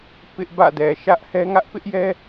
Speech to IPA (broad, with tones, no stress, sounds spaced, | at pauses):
p ɪ˦ ʔ b ä̰˦˨ d ɛ˨ ʃ ä˦ ʔ h ɛ˦ ŋ ä˦ ʔ p ɪ˦ ʔ j ɛ˦